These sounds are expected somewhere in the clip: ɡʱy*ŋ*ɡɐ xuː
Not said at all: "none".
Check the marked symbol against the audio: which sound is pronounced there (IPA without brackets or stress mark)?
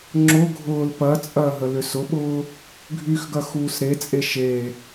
x